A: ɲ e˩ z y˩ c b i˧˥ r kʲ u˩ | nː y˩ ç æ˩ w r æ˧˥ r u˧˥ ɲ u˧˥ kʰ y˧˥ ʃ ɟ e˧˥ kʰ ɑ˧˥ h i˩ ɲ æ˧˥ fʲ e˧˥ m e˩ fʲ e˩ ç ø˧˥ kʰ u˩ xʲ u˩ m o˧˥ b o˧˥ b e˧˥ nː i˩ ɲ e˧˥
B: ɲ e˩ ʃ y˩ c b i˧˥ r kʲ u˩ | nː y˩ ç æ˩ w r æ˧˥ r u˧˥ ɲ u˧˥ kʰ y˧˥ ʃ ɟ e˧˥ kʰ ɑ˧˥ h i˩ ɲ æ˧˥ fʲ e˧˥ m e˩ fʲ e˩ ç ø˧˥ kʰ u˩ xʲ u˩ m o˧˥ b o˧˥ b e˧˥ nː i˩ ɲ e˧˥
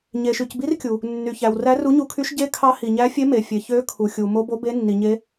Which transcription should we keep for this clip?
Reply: B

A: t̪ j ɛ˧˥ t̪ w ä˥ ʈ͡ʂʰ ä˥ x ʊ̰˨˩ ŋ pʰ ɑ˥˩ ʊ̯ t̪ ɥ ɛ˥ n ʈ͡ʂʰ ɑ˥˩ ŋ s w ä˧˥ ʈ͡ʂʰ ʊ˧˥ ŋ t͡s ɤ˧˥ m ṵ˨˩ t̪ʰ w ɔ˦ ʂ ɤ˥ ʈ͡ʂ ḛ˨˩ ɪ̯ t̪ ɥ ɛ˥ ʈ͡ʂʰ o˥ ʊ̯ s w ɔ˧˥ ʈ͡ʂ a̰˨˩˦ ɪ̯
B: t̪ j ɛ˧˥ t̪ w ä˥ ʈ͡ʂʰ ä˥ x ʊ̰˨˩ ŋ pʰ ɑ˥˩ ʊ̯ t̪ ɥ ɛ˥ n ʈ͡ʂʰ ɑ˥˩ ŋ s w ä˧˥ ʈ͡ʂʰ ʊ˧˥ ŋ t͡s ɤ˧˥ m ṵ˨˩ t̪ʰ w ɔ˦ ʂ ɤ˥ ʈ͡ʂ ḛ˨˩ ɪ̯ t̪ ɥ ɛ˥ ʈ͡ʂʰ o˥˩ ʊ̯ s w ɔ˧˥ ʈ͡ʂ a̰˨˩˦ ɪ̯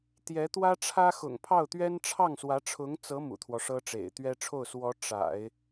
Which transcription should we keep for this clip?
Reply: B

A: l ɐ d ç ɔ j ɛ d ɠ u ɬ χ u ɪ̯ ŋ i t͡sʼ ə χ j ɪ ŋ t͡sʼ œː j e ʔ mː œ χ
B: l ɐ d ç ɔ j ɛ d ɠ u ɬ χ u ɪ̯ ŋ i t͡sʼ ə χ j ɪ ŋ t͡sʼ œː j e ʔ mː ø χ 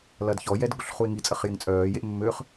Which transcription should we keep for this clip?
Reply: B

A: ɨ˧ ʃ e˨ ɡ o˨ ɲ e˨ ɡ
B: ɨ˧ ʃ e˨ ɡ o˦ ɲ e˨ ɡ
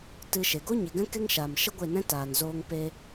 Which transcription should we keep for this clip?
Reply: B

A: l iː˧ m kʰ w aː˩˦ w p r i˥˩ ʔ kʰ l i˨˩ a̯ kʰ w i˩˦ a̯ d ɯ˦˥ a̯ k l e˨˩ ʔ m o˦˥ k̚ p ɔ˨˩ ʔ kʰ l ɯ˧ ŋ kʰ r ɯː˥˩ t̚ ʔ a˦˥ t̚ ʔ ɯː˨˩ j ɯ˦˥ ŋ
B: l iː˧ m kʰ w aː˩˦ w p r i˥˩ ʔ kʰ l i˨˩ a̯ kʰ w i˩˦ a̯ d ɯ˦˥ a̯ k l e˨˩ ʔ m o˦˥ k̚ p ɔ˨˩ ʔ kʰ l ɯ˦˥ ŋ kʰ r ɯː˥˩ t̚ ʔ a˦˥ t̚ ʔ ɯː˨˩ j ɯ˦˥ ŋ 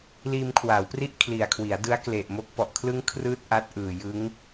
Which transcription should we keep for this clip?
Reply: B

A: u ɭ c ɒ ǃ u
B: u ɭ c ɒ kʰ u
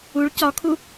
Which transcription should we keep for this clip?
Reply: B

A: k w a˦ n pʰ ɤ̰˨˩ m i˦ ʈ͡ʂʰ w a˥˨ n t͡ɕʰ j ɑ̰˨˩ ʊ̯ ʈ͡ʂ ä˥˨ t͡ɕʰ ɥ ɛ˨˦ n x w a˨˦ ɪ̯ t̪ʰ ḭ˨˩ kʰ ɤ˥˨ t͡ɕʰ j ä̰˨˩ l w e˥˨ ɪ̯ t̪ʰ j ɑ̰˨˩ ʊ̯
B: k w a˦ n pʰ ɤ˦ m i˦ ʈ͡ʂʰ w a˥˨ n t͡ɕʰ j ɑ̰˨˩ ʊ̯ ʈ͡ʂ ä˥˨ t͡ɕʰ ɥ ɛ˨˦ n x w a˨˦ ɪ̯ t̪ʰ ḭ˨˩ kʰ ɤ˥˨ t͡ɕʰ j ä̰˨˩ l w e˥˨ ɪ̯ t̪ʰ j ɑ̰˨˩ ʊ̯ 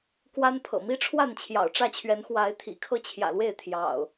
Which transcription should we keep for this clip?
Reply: A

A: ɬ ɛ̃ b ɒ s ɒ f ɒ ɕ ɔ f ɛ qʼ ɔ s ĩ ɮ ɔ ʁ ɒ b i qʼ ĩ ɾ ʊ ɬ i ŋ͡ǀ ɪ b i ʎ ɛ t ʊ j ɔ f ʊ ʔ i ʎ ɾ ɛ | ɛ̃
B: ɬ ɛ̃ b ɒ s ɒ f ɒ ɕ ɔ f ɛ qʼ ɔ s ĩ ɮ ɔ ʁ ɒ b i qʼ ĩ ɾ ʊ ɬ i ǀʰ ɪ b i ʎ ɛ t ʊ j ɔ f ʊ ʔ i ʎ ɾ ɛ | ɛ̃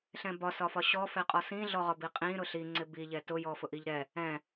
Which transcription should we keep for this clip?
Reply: A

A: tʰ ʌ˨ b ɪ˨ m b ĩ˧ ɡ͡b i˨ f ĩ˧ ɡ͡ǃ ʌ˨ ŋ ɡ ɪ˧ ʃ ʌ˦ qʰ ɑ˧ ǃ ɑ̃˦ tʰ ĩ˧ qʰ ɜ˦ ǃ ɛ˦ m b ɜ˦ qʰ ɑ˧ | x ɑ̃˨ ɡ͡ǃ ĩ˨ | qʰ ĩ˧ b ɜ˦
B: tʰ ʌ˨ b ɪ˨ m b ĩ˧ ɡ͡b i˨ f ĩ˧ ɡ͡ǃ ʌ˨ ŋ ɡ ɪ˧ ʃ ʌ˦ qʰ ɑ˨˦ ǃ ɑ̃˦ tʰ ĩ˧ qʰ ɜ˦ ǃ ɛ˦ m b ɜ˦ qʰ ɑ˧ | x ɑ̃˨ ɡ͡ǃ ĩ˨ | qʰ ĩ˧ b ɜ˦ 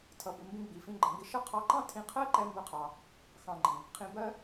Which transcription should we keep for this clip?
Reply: A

